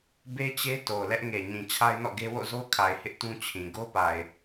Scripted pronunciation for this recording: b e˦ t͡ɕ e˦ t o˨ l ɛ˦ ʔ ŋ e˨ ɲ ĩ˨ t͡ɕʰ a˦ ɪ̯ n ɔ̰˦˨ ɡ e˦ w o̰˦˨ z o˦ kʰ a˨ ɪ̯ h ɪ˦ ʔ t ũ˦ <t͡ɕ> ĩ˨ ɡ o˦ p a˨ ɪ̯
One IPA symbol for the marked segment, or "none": t͡ɕʰ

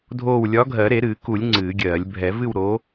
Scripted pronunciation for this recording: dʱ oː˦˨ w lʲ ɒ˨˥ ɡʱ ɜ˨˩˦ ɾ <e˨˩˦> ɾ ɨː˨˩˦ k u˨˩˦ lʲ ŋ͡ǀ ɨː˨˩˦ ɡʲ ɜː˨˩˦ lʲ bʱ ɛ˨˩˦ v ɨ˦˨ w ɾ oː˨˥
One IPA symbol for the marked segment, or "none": e˨˩˦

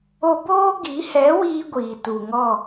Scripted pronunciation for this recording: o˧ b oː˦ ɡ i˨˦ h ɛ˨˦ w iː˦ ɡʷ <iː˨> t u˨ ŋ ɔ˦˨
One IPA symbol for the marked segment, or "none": iː˨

